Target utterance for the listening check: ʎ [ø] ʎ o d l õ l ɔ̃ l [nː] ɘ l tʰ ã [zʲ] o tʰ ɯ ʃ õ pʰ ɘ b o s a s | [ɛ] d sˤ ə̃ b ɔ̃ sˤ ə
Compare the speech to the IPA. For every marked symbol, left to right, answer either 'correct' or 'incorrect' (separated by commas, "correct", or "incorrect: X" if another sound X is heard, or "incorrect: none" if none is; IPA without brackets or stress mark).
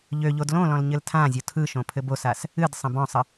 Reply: correct, incorrect: ɲ, correct, incorrect: ɨ